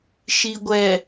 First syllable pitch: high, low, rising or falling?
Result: low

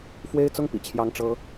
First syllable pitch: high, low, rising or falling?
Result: high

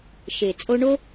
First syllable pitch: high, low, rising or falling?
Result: low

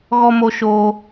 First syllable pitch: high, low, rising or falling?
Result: high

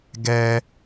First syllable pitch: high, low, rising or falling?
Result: high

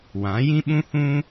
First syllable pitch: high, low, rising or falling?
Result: rising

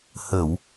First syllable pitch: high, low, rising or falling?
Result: low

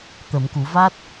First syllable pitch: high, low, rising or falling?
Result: low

